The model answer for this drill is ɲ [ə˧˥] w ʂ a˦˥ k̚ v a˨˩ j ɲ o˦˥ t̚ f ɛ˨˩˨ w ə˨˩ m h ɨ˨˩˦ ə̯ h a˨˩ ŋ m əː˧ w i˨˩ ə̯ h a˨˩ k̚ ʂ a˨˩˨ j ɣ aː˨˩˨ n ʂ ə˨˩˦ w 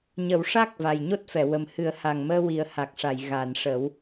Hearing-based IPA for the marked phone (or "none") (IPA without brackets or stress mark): ə˨˩˦